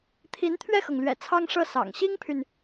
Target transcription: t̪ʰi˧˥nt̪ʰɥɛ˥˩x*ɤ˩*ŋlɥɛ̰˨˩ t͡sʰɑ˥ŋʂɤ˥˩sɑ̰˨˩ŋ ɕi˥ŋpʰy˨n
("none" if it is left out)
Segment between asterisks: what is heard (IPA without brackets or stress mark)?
ɤ˩